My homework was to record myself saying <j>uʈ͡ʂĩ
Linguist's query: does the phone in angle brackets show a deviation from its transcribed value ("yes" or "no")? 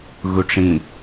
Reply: yes